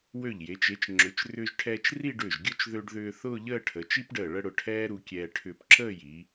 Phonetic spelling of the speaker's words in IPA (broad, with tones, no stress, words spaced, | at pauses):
wø˧˩ʎje˩˧t͡ʃ e˩˧t͡ʃ ŋ͡ǁʏ˩˧t͡ʃrʏː˧ʒʈʰɛː˧t͡ʃ ri˥˧ɖʏː˧˩ʒɡʲʊ˥˧t͡ʃ ðø˧ɖðʏː˧ θʊː˥˧ʎəː˥˧ʈʰə˩˧ t͡ʃi˥pɖəː˧˩ɭə˥˧ɽʊ˧˩ ʈʰɛː˥ɾu˧kʲɛː˧ ʈʰʏː˧pǁəː˥˧ji˩˧